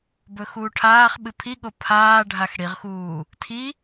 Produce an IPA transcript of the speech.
b ɵ x uː ʈʰ aː χ ɓ ɨ pʰ i ɠ o pʰ aː ɖʱ a x ɽ i ʁ x uː | tʰ i

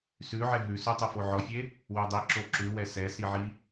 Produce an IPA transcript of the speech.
s ʉ ʕ ɛ ɦ ʉ s ʉ tˤ ɵ f o ʕ ɔ fʲ e | w ø dˤ i ǁ o ǁ ʉ w ɛ s ɛ s i ʕ i

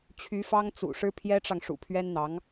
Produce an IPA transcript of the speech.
t͡ɕʰ y˧˥ f ɑ˥ ŋ t͡s ṵ˨˩ ʂ ɻ̩˥ pʰ j ɛ˥ ʈ͡ʂ ɑ˨ ŋ ʂ ṵ˨˩ pʰ ɥ ɛ˥ n n̪ ɑ˧˥ ŋ

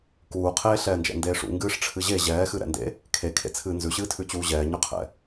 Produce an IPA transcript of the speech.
k uː qʰ eː ɬ ɛː n d͡ʒ ɛ̰ n d eː ʂ ṵ ŋ ɡ ɨː ʂ ʈ͡ʂʰ ɨ ʑ e ʑ ɛː x ɨ ɾ ɛ̰ n d ḛ | kʰ e kʰ ḛ t͡sʰ ɨː n z ʉ ɕ ɨː tʰ ʉ t͡ɕ uː ʑ ɛː ɲ ʉ qʰ ɛ̰

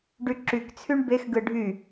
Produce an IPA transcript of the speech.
ɖ y ǁ y k t͡sʰ y ɳ b e x ɡ ɯ ɖʱ y

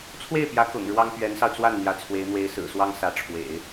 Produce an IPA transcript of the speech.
t͡sʰ w e˥˩ ɪ̯ p j ä˧˥ k ʊ̰˨˩ ŋ ɻ w ɑ˥ ŋ p ɥ ɛ˧˥ n s ɑ˧ ʊ̯ t͡s w a˥˩ n n̪ j ä˧˥ t͡sʰ w e˧˥ ɪ̯ n̪ w e˧˥ ɪ̯ s ɹ̩˨˩ s w ɑ˥ ŋ s ä˧˥ ʈ͡ʂʰ w ḛ˨˩˦ ɪ̯

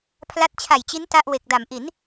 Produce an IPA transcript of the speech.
pʰ l a˦˥ t̚ t͡ɕʰ a˨˩ j t͡ɕ i˦˥ n t a˥˩ ʔ w e˨˩ k̚ d a˩˦ m ʔ i˩˦ n

